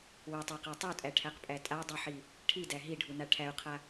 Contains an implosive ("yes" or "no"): no